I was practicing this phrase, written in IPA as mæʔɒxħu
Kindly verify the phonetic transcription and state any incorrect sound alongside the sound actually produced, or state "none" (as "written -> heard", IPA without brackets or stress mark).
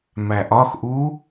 ħ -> ʔ